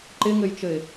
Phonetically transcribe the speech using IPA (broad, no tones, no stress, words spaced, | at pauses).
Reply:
ǃɪŋɘjt͡ʃɘɪ̯